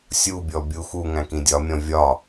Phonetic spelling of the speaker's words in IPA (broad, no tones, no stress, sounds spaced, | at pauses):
sʲ u bʲ ɔ bʲ u x u ŋ æ̃ k ĩ dʲ ɒ mʲ ɔ̃ vʲ ɒ